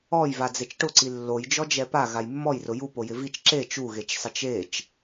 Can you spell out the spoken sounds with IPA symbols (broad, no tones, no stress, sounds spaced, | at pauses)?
ɔ j v a d͡z e t͡ʃ ʈ ʊ ǀ i lː o j d͡ʒ ɔ d͡ʒ ɛ p a ɣ a j mː ɔ j r ʊ j u p o j ɪ v i t͡ʃ ǁ e t͡ʃ u ɣ e t͡ʃ sˤ ɪ t͡ʃ e t͡ʃ